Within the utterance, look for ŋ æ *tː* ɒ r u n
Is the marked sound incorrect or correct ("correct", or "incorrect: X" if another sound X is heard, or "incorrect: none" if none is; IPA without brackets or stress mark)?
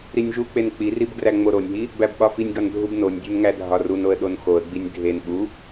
incorrect: dʱ